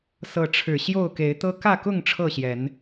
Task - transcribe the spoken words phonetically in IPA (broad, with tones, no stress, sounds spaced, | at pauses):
s ɤ˨˦ ʈ͡ʂʰ ɻ̩˨˩ ɕ j o˥˨ ʊ̯ k e˨˦ ɪ̯ t̪ ɤ˦ k ä˥˨ k ʊ˥˨ ŋ ʈ͡ʂʰ ɤ˥˨ ɕ j ɛ˨˦ n